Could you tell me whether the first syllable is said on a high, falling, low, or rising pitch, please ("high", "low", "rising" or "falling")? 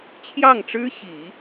falling